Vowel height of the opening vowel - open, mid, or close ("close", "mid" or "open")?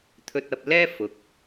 mid